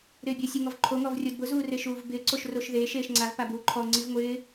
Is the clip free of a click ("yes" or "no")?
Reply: no